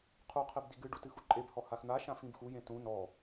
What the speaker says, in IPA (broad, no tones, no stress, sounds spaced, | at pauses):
qʰ u qʰ e b d i ɡ ɨ ɖ u t ɨ x u ǃʼ e b h ɔ h a x n̪ a ʃ ã f ĩ b x u j ẽ t ũ n ɔ